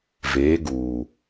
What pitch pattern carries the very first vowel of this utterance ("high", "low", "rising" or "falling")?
rising